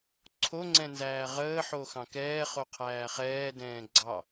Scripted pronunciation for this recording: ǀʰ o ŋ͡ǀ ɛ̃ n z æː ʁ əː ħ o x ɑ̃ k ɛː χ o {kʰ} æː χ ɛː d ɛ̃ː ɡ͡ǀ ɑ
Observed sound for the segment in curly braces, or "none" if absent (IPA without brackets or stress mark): qʰ